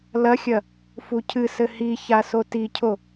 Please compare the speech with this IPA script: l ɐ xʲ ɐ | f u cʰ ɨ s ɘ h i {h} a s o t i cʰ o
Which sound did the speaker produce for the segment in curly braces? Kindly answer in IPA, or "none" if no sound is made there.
ç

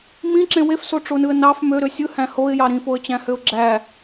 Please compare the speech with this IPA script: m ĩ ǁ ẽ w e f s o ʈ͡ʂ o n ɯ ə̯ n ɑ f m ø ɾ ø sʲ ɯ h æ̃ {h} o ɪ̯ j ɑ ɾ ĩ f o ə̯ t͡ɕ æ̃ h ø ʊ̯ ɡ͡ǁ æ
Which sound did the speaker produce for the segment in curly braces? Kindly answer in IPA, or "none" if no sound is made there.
h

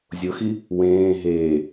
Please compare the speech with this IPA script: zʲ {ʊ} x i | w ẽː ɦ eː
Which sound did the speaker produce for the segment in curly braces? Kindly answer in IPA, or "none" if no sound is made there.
ʊ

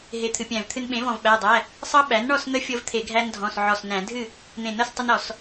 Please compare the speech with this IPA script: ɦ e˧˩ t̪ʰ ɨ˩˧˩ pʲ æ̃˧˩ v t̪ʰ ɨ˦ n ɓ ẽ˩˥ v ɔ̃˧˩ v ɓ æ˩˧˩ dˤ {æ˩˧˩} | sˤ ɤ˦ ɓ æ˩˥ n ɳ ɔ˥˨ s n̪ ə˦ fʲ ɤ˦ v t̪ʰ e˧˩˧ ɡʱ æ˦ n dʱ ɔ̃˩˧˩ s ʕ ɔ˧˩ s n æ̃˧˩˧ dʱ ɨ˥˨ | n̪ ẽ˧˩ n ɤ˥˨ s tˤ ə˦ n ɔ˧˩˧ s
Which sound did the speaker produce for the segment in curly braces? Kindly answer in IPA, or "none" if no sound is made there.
æ˩˧˩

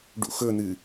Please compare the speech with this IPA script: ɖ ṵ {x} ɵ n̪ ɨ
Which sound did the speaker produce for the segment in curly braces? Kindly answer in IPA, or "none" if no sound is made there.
x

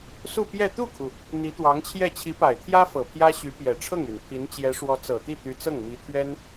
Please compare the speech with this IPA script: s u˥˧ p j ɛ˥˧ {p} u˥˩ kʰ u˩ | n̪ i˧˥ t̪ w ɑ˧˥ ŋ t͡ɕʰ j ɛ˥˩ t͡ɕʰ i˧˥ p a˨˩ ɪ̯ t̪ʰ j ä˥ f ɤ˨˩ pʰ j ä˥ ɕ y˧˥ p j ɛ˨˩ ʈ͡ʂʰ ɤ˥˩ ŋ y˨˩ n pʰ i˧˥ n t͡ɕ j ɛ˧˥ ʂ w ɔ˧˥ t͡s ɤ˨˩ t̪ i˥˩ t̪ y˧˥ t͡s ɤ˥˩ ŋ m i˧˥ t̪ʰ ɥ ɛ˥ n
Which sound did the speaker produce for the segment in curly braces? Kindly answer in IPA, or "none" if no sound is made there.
t̪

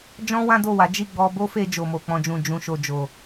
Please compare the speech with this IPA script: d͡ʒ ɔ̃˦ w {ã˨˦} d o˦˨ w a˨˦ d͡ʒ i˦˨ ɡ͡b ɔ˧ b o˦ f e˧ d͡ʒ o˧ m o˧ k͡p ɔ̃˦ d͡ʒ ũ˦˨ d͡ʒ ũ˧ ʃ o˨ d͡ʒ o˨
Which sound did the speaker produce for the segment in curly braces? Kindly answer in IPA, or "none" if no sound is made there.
ã˦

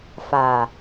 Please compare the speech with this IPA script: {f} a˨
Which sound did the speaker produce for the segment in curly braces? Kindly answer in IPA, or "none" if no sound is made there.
f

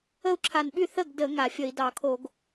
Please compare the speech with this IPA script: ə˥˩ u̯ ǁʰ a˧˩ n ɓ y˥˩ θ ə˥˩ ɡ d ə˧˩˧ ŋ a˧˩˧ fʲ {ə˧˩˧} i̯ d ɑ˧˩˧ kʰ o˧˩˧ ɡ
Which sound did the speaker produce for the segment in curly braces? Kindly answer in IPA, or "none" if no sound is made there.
ə˧˩˧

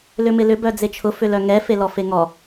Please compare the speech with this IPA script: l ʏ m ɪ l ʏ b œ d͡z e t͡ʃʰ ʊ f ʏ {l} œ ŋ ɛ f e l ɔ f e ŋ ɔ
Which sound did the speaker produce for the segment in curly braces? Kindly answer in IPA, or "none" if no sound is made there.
l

